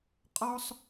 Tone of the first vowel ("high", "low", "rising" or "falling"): high